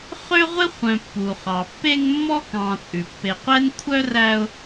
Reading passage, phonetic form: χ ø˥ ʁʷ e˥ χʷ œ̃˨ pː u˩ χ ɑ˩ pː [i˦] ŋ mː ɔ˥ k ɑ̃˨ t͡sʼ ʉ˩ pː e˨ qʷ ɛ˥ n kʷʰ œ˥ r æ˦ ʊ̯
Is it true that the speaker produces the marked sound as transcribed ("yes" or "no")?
no